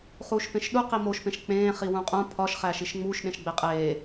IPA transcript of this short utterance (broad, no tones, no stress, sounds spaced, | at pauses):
χ uː ʃ p ẽ ʃ ɗ u q i m o ʃ p ẽ ʃ k͡p ẽː χ i w ũ qʼ ũ pʰ ɒ ʃ χ æ ʃ i ʃ ŋ͡m uː ʃ ɗ ẽ ʃ ɡ͡b e qʼ eː